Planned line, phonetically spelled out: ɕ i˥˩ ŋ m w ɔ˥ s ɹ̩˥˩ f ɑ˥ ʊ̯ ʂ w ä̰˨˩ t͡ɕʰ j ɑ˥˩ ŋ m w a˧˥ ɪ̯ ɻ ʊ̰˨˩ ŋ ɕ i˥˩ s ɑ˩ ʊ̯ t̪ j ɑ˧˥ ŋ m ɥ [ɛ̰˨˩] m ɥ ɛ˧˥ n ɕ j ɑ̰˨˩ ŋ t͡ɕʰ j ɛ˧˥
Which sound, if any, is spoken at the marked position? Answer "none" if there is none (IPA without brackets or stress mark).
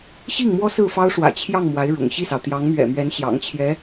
ɛ̰˨˩